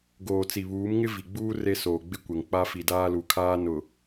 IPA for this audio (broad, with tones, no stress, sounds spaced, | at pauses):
ɡ oː˨ t͡s i˨ β uː˨˦ m ŋ ɪ˦ v i˨ ɡ͡b uː˦ r e˦ s oː˨ ɡ͡b ɪ˦ kʷ ɛ˨ ŋ k͡p a˦ f i˨ d aː˦ l u˨ kʰ aː˦ n ʊ˨